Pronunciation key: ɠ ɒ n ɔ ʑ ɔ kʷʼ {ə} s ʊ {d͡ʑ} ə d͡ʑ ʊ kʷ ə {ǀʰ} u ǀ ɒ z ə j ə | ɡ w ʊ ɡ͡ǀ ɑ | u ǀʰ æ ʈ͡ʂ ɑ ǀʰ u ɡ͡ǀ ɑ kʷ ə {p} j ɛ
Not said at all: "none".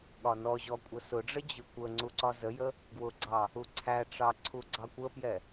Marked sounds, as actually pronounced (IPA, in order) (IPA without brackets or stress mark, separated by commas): ə, ɖ͡ʐ, ŋ͡ǀ, p